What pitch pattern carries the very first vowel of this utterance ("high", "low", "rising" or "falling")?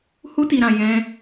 high